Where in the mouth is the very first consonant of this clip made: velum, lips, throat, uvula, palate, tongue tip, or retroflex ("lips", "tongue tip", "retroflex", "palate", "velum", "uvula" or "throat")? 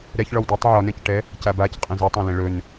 tongue tip